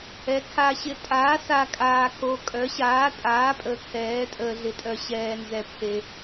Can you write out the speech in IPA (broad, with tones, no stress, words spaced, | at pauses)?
ɛ˨˥kʰa˧ ɕɪ˨˥tʼaː˨˥sa˧ kʼaː˧kʰo˧kʼœ˨˥ ɕaː˨˥tʼaː˨˥pʼə˨˥ kʰɛː˨˥tʼəː˧ɮɪ˧tʼœ˧ ɕɛː˧nzɛ˧ pʰe˧